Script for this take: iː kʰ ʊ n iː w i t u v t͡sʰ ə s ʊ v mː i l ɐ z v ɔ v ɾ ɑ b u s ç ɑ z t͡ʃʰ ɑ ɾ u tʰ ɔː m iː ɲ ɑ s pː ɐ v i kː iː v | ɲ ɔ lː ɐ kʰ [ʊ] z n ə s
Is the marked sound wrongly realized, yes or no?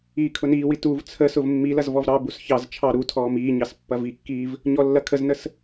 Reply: yes